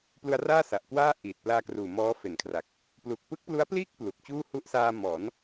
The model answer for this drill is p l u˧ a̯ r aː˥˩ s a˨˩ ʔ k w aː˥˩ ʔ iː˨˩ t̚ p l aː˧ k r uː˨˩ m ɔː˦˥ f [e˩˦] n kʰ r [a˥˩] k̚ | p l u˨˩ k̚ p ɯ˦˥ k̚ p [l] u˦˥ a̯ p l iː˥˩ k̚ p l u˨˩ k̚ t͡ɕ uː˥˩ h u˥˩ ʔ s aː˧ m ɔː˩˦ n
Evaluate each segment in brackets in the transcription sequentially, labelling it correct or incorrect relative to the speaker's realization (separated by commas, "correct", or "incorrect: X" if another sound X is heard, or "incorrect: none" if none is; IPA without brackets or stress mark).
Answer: correct, incorrect: a˨˩, correct